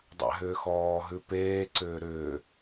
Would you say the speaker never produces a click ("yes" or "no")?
no